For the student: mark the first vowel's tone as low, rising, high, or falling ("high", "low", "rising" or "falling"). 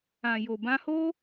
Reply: low